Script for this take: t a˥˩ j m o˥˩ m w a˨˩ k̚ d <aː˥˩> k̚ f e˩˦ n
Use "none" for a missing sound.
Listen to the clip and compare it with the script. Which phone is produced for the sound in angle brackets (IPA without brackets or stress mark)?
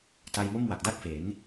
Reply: a˥˩